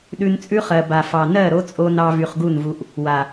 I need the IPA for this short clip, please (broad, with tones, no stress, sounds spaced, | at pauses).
ɗ ʉ˧ n t͡sʼ ʉ˦ χ ɜ˨ b a˨ f ɑ˨ n ɜ˦˨ ɾ o˦ t͡sʼ o˧ n ɑ˧ v y˨ χ ɡ u˦˨ n v u˧ ʔ | w a˨